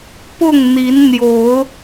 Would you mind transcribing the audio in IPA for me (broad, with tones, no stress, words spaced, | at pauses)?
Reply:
pʊ˥˨ŋn̪i˨˦n n̪jo˨˦ʊ̯